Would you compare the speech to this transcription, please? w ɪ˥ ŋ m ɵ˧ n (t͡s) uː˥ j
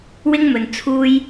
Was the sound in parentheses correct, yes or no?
no